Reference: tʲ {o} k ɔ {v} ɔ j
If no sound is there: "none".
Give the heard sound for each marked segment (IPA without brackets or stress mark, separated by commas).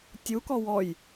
u, w